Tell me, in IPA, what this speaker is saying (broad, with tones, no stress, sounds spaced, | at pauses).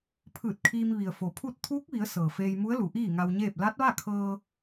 pʰ ɯː˧˩ t̚ kʰ iː˧ m ʋ i˩ ə̯ f o˩ pʰ u˥˨ t̚ t̪ʰ uː˧˥ k̚ ʋ i˩˧ ə̯ s ɤː˩ f eː˧ j m u˧˥ ə̯ l u˩˧ ʔ iː˥˨ ŋ a˧ w ɲ eː˥˨ p̚ l a˧˥ t̚ ʋ a˥˨ kʰ ɤː˧